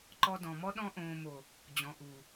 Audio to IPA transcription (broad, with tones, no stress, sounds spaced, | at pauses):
ǃ ɔ˧ d ɔ̃˨ m ɔ˦ ɗ ɔ̃˧ ʔ õː˨ m o˨ | d͡ʑ ɔ̃˨ ʔ u˨